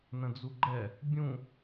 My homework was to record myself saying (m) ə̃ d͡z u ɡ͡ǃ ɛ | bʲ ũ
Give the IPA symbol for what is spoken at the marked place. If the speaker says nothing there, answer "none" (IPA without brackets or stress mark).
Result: n